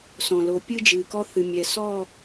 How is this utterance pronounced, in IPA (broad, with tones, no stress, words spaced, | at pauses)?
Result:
sɔ̃˨lo˨ pʲɨ˦d͡ʒɨ˨kɔ˦θɨ˨ mʲɛ˨sɔ˦˨